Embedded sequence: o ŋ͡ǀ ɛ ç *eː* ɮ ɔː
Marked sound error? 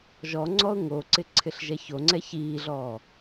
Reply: yes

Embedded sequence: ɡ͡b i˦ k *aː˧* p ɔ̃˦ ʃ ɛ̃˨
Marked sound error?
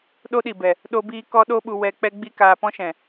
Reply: no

